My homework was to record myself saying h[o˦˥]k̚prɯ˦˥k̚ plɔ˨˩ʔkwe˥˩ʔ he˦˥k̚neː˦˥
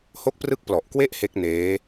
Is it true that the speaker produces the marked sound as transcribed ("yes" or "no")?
yes